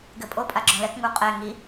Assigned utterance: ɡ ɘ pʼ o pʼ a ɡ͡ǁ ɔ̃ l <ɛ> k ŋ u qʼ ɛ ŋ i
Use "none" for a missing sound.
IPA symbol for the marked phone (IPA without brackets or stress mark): ɛ